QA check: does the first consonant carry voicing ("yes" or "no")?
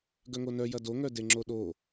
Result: yes